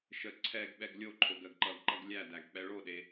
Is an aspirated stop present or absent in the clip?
present